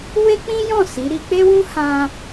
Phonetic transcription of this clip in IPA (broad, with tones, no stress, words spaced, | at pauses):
we˦k͡pĩ˦jɔ̃˦˨ si˨˦ɾi˦ k͡pe˦wũ˦hã˧